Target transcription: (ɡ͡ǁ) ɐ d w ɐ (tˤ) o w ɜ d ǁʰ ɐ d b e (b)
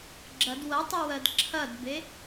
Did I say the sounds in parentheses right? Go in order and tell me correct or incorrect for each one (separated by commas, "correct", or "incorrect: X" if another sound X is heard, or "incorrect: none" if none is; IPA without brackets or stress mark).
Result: correct, correct, incorrect: none